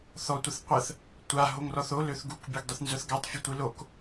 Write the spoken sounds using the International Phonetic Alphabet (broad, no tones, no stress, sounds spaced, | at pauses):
θ ɔ tʷ ə θ qʷ ə θ | tʷ a ɦ o ŋ r ɔ θ o l ø θ ɡ u k bʲ o ɡ dˤ ø θ n z œ θ ɡ a tˤ fʲ o tʷ i l o k